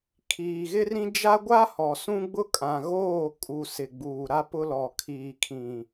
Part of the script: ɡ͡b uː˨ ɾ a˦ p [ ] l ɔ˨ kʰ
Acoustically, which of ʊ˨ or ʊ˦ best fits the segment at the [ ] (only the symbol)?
ʊ˦